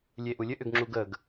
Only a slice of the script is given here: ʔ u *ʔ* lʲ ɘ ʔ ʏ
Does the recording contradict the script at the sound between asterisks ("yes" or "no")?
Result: yes